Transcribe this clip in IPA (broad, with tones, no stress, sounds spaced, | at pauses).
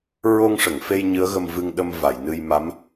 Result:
ɹ o˧ ŋ ʂ ə˨˩˨ ŋ f e˧ j ɲ ɨ˧˥ ə̯ ɣ ə˧ m v ɨ˧ ŋ ɗ ə˧ m v a˨˩˨ j n ɨ˧ j m a˧˥ m